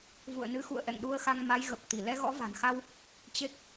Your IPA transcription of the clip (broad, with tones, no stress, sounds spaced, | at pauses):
v ṵ˧˨ ə̯ n ɨ˨˦ x ṵ˧˨ ə̯ ʔ ɛ̰˧˨ ŋ ɗ u˧ ə̯ x a˧ ŋ m a˨˦ j ɣ ə˨˩ p̚ t̪ i˧˩ l ɛ˧ ɣ ɔ̰˧˥ v a̤˨˩ n x a˧ w | t͡ɕ e˦˥ k̚